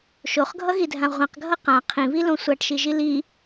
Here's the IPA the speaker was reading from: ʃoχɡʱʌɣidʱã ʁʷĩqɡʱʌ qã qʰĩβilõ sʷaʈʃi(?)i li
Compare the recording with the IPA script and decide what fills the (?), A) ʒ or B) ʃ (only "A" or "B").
A